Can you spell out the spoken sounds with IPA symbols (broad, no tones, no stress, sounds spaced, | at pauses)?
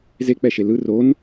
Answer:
z e k͡p ɛ ʃ e l ɯ r o n